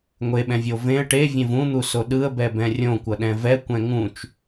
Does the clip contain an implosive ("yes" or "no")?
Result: yes